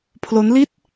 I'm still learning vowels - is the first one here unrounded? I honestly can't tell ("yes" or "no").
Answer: no